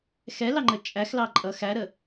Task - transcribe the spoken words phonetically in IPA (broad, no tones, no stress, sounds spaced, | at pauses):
x ɛ l ɑ ŋ͡ǃ ə t͡ʃʼ æ x l ɑ ǃʼ ʌ x æ ɾ ə